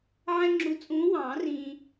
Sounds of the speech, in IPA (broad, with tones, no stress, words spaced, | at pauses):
ʕɛ̃˦ŋ͡ǁu˨˥ t͡sʼũː˨˥wɑ̃ː˨˩˦rĩː˨